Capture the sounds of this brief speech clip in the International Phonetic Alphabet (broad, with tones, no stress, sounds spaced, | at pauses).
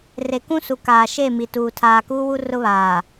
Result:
r e˨ k ũ˦ s u˨ k aː˨ ʃ e˦˨ m i˨ t uː˨ tʰ aː˨ k uː˦ w u˦ r ʊ˦ β aː˨